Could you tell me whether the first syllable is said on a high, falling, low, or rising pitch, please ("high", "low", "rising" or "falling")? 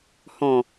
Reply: low